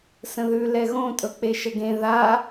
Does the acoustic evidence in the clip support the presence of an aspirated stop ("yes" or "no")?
no